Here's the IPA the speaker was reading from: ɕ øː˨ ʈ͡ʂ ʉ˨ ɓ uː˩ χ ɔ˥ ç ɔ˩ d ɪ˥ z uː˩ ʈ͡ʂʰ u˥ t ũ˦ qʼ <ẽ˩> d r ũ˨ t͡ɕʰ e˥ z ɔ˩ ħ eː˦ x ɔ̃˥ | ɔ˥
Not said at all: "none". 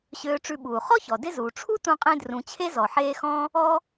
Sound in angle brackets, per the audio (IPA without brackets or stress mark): ẽ˦